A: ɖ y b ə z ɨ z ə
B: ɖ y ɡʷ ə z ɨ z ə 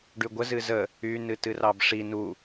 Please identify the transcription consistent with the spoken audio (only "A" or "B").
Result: B